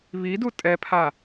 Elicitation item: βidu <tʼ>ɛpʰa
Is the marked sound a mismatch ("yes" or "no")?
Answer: no